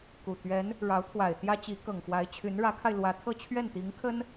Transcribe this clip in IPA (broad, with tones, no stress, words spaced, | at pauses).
ku˨˩ t̪ɥɛ˧˥n | ɻɑ˧˥ʊ̯t̪ʰwa˨˩ɪ̯t̪jä˥t͡ɕi˧˥ kɤ˨˩ŋfwa˧˥ɪ̯t͡ɕʰy˧˥n ɻä˧˥kʰa˧ɪ̯lwä˧˥t̪ʰɤ˥˧ t͡ɕʰɥɛ˥˩nt̪i˧˥ŋ kʰə˥n